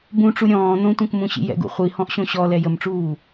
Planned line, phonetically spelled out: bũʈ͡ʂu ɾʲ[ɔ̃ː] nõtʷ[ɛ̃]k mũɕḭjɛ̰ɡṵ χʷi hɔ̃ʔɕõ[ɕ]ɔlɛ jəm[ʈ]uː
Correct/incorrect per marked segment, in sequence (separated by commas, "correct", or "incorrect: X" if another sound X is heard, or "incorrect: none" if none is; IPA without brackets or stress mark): correct, correct, correct, incorrect: ʈ͡ʂ